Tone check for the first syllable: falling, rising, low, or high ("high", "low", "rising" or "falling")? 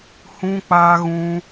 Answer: high